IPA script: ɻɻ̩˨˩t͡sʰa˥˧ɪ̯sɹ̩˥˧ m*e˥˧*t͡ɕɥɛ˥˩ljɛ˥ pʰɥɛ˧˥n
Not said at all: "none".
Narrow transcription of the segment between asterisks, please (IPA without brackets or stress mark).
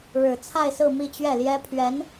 i˥˧